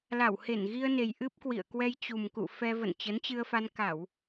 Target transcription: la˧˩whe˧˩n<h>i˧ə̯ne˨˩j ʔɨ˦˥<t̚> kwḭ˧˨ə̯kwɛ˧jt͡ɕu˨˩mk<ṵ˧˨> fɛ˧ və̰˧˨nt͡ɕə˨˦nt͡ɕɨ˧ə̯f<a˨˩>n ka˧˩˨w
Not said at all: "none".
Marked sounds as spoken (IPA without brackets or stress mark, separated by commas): ɣ, p̚, ṵ˧˨, a˧